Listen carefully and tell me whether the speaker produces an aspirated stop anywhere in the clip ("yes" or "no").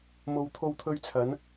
yes